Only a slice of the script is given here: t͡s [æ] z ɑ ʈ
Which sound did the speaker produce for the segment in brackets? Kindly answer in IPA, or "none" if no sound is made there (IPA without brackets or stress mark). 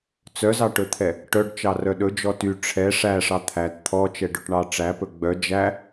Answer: œ